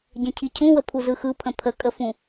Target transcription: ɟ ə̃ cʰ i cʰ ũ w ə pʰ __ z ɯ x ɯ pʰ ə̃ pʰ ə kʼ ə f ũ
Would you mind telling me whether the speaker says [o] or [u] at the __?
u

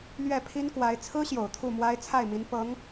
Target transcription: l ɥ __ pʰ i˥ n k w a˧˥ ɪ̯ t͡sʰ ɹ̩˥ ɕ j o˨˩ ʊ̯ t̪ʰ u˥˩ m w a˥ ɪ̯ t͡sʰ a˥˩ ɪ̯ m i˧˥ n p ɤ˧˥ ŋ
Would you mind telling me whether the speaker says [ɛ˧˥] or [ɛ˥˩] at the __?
ɛ˥˩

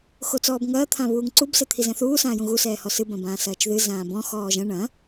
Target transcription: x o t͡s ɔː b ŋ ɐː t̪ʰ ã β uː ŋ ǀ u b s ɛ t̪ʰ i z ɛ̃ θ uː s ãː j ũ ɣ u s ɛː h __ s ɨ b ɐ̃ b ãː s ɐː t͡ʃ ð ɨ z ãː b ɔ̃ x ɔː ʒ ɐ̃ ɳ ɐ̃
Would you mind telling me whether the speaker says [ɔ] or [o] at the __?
ɔ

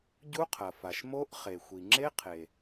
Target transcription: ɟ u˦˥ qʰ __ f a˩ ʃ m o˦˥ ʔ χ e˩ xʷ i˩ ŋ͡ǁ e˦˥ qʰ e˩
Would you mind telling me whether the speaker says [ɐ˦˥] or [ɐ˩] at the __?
ɐ˩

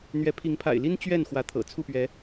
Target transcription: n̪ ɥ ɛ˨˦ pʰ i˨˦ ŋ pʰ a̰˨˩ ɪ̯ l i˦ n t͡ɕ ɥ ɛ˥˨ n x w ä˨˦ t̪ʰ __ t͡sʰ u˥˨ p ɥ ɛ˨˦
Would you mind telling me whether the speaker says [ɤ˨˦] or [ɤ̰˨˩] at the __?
ɤ̰˨˩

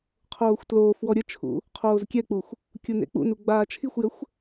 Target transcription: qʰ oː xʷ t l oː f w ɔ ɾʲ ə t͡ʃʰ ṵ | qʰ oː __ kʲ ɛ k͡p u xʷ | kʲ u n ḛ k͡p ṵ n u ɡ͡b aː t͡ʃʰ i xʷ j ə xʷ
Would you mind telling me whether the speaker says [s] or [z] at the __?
z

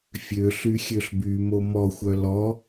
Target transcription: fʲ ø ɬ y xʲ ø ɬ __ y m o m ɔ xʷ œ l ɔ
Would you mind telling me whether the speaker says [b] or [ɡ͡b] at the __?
b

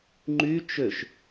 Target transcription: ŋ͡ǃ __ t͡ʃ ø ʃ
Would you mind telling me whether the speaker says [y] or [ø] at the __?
y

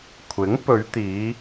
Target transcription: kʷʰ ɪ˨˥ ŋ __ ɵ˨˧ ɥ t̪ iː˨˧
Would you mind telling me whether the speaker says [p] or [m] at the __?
p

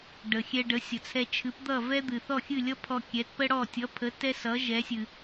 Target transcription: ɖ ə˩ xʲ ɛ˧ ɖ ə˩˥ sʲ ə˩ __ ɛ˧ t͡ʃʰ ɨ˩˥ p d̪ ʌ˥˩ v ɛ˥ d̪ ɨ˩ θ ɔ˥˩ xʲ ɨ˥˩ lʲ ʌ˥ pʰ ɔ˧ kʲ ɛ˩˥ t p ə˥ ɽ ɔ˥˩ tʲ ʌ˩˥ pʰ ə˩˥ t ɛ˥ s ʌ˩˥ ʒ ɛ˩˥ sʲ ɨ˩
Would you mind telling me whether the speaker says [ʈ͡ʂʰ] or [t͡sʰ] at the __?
t͡sʰ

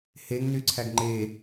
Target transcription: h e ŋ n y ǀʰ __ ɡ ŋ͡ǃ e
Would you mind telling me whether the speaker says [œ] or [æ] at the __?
æ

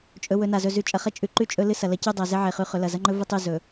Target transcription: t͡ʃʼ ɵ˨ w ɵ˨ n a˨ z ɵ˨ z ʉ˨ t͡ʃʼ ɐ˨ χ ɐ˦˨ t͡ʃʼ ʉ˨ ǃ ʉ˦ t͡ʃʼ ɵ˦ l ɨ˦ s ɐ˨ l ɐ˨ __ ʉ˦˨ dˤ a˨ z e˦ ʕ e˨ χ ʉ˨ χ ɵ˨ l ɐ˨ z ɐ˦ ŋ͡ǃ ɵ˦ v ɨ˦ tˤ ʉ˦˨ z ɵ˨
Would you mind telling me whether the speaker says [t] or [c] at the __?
c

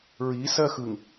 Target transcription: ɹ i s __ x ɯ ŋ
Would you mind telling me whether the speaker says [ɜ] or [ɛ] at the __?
ɜ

